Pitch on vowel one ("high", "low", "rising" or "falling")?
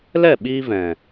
falling